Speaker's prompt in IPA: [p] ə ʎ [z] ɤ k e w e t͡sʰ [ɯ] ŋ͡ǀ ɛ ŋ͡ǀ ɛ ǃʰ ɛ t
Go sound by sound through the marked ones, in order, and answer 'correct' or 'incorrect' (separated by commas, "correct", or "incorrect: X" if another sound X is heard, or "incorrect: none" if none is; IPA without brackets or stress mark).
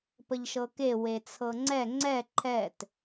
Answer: correct, incorrect: ʃ, incorrect: ɤ